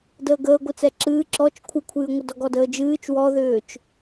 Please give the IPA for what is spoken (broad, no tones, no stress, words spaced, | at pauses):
dəːɡəː ɡʷɨt͡sɛǁɨː ǁɔt͡ʃ kʷʰɨkʷʰɨːŋʷə dɔɡɔdəːd͡ʒɨːt͡ʃ wɔðʏːt͡ʃ